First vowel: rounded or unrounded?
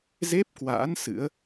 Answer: unrounded